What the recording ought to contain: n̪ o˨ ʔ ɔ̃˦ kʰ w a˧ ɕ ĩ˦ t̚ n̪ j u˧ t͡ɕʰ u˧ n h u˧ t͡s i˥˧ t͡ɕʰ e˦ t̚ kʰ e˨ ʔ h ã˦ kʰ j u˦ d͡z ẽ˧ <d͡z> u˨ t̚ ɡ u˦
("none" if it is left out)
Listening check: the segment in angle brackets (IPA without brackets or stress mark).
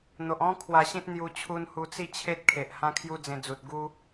d͡z